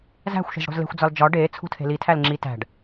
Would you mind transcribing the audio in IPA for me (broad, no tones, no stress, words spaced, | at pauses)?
zæ̤xʷʃe̤zɽo̤z le̤xʷd͡zɒl d͡ʒɒ ɖeːt͡sʰṳtʰe̤ litʰæl ŋ͡ǁi tæ̤ɖ